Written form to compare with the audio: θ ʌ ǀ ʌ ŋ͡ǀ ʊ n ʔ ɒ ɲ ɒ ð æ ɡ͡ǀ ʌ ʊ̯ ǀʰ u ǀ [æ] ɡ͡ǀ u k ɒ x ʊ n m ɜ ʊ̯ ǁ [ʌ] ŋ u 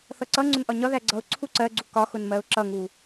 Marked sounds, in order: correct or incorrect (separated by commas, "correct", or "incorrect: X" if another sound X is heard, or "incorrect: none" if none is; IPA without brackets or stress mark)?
incorrect: ɜ, correct